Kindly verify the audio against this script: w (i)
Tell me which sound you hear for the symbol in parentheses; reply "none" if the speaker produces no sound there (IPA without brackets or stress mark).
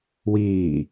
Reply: iː